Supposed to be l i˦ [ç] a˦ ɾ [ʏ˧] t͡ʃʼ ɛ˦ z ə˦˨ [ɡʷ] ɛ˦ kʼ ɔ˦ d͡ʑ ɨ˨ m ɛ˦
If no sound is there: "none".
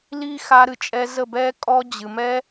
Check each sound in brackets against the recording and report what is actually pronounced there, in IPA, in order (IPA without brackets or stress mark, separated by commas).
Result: x, ɨ˧, b